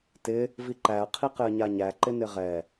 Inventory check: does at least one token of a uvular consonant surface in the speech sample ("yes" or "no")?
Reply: yes